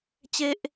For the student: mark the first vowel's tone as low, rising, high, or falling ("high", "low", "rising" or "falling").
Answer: high